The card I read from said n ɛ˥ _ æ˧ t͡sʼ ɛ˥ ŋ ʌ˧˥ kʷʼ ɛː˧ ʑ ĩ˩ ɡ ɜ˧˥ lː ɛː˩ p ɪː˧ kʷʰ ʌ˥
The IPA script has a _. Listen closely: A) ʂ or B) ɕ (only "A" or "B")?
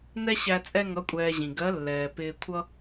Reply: B